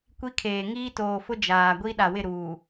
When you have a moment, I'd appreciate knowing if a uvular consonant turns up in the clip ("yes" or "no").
no